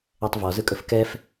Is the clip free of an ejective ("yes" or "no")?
no